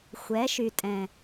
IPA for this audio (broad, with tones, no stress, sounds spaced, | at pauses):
xʷ ɛ˨˦ ʃ y˨ tʼ ɛ̃˨